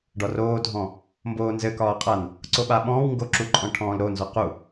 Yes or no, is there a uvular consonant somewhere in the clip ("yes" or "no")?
yes